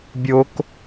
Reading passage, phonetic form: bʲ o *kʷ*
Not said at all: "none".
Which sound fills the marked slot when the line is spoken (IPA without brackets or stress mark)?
k